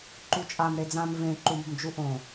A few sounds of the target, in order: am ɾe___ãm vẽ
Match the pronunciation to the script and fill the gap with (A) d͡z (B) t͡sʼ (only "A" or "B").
A